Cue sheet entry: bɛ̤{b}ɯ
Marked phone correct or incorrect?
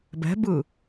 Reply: correct